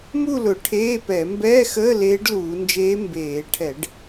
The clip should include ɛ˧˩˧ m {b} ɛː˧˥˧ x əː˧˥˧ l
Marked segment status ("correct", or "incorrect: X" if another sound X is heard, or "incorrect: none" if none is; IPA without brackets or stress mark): correct